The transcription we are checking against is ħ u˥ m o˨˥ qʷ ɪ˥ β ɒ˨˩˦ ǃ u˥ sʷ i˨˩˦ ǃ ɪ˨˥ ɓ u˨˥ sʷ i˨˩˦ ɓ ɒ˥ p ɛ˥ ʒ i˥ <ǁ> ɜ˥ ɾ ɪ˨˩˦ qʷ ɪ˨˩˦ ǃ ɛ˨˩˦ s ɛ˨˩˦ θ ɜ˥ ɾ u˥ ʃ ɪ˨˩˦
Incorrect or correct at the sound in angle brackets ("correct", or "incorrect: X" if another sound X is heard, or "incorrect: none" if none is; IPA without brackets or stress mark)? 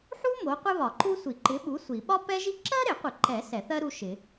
correct